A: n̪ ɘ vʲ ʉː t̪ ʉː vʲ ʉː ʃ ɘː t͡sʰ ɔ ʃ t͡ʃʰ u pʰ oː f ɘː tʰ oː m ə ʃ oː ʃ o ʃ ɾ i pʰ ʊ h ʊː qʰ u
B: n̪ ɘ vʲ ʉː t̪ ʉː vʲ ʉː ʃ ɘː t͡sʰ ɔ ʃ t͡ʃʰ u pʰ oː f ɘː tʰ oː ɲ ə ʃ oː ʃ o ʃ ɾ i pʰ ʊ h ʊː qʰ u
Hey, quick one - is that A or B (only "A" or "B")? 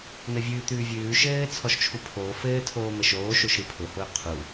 A